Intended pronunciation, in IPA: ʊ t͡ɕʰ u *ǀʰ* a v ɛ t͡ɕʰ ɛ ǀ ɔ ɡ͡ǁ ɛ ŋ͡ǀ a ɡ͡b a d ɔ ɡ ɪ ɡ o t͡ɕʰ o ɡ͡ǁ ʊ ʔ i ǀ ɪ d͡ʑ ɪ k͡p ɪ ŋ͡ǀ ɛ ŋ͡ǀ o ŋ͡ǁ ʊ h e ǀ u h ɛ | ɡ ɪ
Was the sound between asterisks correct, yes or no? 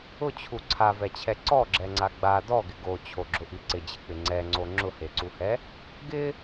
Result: yes